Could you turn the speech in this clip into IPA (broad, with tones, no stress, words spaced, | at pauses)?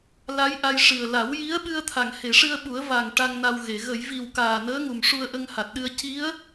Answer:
la˧˥j ʔa˧jʂɨ˨˩ə̯ la˨˩˦wji˧˥ə̯ɓɨ˧ə̯ t̪ʰa˨˩˨ŋhe˨˩˨ʂɨ˧ə̯ɓu˨˩˦ə̯ va˨˩ŋ ʈa˧ŋna˧wɣe˨˩˨ ɣə˨˩˨jvi˨˩w kaː˨˩nəː˧˥ŋu˨˩m ʂu˧ə̯ʔə˧ŋha˨˩t̚ɗɨ˧ə̯ ci˧˥ə̯